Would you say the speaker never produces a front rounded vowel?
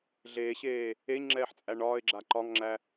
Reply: yes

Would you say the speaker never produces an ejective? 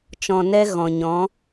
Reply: yes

